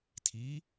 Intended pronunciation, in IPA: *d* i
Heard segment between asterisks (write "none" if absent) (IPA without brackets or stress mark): tʰ